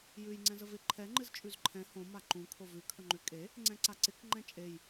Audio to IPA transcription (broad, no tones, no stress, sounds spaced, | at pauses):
j ʉ j ŋ͡ǀ ɛ̃ z ə v ɪ ǃʰ ɛ ŋ͡ǃ ɨ z t͡ʃʼ ʉ z ǃʰ ɛ̃ h õ m a ǃ ũ kʰ o v ʉ kʰ ə ŋ͡ǃ ʉ kʼ e | ŋ͡ǀ ɛ̃ ǀ a ǀ ɪ k ŋ͡ǃ ɛ̃ t͡ʃʼ e j